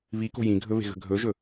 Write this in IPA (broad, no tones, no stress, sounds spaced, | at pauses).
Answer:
β i k o̤ j ĩ ɡʱ ɵ β e̤ ɣ ə̤ ɡʱ ɵ ʒ ɵ